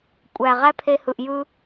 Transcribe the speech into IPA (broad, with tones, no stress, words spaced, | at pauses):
kʷʼæ˨ ʁæ˦pʰe˧hɯ˨ʔ jɯ˧